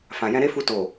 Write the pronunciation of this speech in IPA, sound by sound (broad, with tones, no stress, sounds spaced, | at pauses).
f ã˨ j ɛ̃˧ ɾ e˦ f u˧ t o˨